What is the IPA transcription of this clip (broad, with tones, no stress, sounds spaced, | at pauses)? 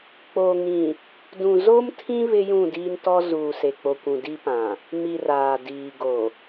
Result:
k͡p o˨ ŋ ĩ˨ | d ũ˨ z o˦ m tʰ ĩ˦ β ɪ˦ j ũ˦˨ d iː˦ n t ɔ˦ z uː˨ s e˨ k͡p o˨ kʷ ũ˨ d i˦ p ã˨ | m i˨ r aː˨ d iː˨ ɡ o˨